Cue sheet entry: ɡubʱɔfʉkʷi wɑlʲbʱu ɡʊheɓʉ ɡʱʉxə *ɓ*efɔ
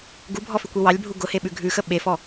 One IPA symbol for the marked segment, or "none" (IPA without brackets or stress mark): ɓ